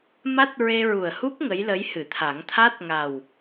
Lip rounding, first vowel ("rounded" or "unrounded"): unrounded